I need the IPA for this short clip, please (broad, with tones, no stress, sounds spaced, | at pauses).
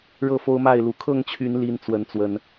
ɻ ɤ˥˨ f o˦ ʊ̯ m a˥˨ ɪ̯ l u˨˦ kʰ ɤ˥˨ ŋ t͡ɕʰ y˨˦ n l i˦ n t͡s w ə˨˦ n t͡s w ə˨˦ n